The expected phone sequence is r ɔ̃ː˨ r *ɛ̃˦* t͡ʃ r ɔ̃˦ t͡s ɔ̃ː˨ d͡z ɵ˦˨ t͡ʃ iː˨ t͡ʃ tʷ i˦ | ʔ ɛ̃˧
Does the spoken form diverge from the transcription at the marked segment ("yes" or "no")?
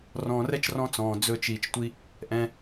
yes